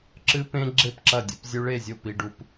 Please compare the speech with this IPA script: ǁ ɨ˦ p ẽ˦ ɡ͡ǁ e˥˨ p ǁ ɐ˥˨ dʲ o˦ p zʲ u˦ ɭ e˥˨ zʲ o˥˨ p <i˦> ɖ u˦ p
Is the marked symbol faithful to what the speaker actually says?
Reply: yes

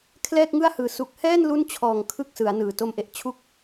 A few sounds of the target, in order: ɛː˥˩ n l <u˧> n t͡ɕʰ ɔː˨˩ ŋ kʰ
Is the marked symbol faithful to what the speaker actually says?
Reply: no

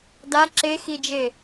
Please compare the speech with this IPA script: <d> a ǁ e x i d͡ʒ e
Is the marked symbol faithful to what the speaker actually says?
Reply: yes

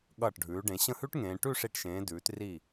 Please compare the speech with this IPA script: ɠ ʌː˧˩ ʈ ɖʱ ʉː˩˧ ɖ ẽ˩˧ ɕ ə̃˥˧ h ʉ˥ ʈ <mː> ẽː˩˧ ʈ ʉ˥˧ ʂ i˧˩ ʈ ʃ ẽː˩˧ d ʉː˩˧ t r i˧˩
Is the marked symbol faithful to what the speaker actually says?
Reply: no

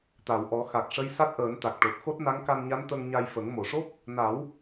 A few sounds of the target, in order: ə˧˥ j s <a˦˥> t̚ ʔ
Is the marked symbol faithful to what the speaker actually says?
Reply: yes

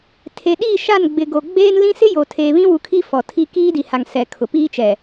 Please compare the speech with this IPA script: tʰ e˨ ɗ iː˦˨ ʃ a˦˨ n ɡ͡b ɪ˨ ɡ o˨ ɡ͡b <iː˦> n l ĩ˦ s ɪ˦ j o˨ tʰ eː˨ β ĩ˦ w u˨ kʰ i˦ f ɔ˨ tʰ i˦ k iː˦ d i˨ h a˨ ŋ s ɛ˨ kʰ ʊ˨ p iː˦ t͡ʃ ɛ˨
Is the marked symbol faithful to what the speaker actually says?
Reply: no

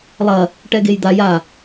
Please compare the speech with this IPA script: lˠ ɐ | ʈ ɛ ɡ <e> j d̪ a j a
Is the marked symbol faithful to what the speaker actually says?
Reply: yes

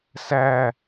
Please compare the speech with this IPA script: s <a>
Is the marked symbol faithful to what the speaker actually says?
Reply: no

